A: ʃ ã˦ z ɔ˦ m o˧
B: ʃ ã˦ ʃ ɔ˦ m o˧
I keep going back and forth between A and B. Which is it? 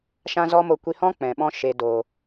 A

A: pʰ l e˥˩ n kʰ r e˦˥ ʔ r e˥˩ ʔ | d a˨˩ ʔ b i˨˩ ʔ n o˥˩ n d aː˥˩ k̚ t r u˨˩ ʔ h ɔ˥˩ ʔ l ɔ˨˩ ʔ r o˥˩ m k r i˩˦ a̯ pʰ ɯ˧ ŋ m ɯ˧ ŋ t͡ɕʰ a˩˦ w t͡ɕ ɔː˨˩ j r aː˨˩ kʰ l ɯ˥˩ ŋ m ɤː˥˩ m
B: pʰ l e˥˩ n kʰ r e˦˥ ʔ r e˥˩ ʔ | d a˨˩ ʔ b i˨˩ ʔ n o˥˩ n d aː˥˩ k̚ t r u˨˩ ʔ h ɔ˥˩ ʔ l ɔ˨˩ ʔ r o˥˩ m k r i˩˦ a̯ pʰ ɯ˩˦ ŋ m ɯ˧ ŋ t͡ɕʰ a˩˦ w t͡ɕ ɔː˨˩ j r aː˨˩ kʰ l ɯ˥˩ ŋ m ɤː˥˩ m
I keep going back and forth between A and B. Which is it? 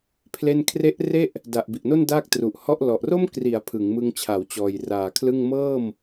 B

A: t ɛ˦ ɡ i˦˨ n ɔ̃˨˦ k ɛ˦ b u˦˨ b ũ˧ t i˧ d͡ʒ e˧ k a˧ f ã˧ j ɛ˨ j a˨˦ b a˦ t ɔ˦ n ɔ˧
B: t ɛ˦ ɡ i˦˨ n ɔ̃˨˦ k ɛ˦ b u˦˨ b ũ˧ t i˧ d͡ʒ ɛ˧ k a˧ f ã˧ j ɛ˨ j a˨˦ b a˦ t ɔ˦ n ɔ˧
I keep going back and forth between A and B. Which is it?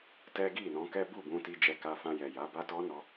B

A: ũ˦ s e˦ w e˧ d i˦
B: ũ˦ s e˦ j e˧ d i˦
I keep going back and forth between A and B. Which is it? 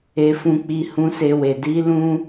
A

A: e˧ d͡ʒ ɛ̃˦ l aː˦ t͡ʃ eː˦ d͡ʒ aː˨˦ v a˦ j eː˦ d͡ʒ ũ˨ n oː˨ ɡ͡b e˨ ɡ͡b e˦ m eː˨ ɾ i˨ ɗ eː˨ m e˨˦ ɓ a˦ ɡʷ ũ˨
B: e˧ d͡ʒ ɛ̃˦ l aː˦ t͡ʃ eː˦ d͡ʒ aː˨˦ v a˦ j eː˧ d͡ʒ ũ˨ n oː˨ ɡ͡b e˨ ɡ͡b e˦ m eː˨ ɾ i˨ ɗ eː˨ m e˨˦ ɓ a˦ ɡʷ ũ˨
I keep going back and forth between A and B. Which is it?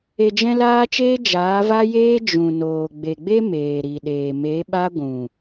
A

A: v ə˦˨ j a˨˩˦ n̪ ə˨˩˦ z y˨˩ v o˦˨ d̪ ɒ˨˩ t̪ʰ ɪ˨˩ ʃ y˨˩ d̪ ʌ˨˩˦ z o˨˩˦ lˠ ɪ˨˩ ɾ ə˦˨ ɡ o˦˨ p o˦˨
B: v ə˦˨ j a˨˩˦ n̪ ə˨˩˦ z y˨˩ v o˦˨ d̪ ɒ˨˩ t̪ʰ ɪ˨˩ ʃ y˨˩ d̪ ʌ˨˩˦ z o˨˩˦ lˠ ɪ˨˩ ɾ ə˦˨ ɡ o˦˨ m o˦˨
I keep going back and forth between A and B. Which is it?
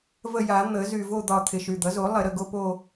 A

